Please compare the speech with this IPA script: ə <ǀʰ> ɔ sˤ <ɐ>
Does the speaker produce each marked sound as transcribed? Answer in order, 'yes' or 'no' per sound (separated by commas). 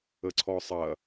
yes, yes